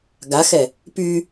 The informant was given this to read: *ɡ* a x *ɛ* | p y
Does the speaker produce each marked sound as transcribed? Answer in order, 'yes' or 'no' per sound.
yes, yes

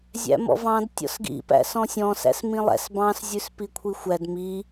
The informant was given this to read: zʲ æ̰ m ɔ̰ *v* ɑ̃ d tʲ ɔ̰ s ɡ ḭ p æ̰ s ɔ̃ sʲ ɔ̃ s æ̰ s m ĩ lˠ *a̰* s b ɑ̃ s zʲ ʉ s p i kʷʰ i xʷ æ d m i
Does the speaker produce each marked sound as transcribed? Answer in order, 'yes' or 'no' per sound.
yes, no

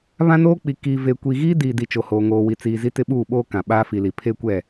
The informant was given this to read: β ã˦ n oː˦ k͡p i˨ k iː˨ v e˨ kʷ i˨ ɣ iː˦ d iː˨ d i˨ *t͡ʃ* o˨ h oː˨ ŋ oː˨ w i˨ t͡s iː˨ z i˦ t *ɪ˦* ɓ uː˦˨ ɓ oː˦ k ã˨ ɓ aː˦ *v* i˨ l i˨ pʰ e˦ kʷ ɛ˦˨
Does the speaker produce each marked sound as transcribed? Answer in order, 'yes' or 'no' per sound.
yes, yes, no

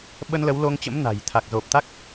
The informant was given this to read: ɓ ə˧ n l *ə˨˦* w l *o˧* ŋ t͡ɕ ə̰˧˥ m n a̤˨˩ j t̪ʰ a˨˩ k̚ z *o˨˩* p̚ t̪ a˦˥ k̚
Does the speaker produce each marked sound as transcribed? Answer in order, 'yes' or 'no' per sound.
yes, yes, yes

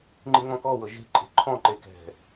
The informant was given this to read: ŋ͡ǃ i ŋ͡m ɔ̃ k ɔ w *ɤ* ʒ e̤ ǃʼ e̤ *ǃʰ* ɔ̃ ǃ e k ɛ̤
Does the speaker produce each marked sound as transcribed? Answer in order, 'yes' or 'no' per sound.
yes, yes

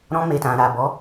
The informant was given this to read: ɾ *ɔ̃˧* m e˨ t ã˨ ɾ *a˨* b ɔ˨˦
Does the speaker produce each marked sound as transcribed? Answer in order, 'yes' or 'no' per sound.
yes, yes

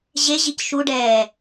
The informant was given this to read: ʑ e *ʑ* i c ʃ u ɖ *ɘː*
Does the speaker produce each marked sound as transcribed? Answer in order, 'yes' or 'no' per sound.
yes, no

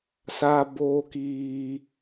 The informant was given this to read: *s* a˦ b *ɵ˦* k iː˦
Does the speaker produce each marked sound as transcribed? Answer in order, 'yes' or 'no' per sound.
yes, no

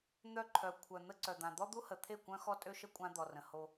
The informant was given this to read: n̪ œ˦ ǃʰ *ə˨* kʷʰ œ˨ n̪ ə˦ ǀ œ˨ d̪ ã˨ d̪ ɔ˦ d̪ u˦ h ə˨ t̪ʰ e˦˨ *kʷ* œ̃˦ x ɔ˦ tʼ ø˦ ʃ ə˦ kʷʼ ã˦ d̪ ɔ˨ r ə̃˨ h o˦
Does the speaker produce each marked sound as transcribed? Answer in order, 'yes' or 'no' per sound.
no, yes

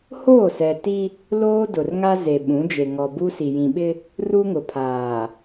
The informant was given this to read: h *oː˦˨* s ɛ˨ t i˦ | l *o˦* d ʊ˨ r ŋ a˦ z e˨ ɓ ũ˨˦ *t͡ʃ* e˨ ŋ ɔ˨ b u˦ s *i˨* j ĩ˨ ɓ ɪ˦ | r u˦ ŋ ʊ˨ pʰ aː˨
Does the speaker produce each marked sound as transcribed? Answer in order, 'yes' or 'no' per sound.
yes, no, no, yes

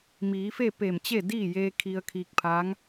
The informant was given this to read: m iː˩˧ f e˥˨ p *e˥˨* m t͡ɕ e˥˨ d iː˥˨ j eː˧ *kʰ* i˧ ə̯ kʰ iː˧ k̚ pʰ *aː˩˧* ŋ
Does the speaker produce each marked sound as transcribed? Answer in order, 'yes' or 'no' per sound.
no, yes, no

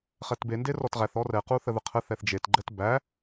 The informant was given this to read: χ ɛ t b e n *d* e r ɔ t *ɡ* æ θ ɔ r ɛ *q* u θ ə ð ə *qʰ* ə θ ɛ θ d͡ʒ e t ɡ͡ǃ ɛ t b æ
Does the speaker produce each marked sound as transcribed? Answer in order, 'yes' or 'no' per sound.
yes, no, yes, yes

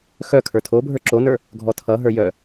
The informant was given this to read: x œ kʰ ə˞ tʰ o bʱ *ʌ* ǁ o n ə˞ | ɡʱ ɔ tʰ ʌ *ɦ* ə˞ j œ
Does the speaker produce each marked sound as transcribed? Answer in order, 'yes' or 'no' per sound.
no, yes

